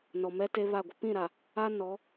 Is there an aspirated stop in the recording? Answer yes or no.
no